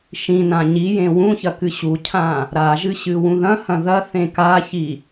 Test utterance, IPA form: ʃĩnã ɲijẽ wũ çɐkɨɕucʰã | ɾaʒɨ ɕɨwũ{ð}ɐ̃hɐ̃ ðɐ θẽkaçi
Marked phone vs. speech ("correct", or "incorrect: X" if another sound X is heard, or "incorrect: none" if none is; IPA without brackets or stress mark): correct